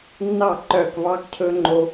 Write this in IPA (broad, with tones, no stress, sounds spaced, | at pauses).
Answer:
nː ɑ˦˨ ǃ œː˦˨ k v ɑː˦ k cʰ ɵː˦ ŋ͡ǃ o˦